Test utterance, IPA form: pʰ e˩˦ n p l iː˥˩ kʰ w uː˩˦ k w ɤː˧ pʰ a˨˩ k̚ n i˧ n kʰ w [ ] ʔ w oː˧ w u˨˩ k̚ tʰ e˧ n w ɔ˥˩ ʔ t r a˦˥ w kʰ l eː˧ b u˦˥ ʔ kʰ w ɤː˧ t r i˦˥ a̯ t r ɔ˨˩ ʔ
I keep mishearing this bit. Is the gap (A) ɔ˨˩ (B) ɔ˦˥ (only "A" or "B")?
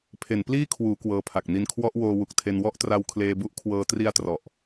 B